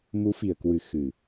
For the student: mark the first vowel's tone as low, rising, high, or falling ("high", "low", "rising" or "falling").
rising